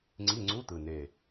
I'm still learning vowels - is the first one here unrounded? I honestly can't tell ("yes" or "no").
yes